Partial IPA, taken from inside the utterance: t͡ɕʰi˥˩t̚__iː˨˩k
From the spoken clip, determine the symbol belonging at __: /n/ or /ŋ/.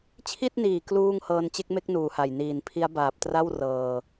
n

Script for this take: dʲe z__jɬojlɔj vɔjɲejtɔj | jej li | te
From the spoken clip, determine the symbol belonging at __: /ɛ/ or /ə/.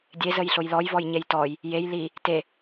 ə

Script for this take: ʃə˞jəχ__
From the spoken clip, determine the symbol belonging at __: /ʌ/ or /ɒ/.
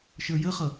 ʌ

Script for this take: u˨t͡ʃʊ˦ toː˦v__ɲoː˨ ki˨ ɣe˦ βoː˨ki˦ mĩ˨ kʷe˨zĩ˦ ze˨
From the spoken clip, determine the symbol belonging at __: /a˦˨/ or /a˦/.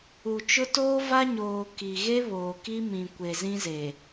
a˦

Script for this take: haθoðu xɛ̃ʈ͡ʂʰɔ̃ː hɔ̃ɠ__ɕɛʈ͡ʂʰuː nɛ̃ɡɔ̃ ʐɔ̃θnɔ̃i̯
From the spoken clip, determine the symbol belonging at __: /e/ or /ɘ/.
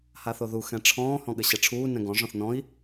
ɘ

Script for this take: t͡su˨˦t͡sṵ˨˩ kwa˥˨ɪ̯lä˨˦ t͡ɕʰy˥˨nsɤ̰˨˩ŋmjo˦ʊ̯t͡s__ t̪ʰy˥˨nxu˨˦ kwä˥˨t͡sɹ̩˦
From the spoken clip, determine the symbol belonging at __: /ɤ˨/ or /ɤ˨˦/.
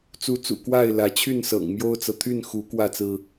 ɤ˨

